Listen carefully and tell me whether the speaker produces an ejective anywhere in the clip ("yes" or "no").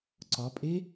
yes